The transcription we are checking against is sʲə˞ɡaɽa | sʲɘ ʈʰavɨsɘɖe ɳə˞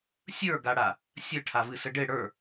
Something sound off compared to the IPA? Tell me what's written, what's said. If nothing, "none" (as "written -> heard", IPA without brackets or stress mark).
ɳ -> ɽ